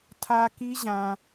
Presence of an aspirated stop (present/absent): present